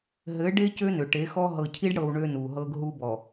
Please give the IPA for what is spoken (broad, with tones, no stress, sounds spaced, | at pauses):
ɦ ɘ˨˦ ɖ e˦ c ø˦ n ø˨ ʈ e˨˦ x ɔ˦ ɦ ɤ˨ cʰ i˦ ɖ ɽ ɤ˨ w ɳ ø˦ n u˨ ɦ ɤ˦ ɡ ɦ u˦ b ɔ˨